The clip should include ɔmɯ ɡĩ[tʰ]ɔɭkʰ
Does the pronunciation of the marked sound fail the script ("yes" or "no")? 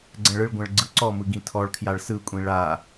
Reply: no